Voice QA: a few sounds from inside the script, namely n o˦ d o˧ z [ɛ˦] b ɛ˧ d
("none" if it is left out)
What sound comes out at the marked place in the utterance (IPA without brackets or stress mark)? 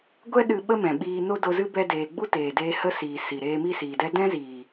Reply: ɨ˦